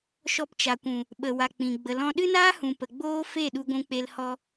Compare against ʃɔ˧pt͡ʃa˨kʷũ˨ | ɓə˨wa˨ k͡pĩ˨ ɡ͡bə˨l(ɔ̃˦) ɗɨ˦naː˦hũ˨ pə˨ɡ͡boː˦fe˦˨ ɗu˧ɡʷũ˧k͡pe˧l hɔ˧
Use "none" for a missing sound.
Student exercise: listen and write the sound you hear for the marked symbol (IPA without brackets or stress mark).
ɔ̃˧